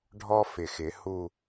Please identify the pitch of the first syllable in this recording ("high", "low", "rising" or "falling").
high